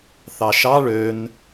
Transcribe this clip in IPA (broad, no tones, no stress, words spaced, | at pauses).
θɑʃɑ ɭøn